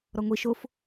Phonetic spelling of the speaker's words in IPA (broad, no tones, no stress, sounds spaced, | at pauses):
ɾ ɔ ŋʷ i ʃ o f